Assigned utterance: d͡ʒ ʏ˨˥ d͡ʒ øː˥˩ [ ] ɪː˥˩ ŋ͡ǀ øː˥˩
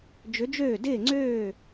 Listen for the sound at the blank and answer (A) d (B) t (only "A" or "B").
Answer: A